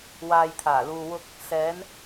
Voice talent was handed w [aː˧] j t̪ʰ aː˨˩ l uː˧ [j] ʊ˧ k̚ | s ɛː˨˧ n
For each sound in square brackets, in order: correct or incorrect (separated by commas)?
correct, incorrect